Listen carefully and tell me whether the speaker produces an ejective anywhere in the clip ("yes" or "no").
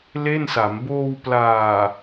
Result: no